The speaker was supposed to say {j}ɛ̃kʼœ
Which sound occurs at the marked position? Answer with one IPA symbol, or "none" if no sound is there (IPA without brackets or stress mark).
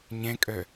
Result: ɲ